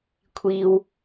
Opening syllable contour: low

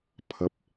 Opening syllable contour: rising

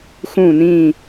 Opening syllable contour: falling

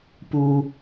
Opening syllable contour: low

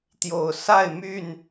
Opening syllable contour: low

